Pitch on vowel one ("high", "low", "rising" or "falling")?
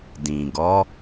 low